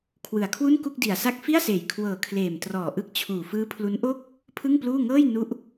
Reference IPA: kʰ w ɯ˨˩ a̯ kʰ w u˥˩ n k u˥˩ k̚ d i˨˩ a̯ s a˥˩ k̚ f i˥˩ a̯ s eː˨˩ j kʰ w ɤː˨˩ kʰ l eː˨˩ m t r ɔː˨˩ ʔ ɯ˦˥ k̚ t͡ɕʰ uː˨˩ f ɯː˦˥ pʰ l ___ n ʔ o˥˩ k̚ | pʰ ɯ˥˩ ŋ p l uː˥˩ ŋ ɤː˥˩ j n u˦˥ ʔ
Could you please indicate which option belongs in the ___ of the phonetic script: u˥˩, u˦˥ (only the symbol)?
u˦˥